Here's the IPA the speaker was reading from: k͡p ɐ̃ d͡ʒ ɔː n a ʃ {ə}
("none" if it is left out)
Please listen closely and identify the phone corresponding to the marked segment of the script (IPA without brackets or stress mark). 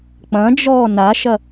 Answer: ɐ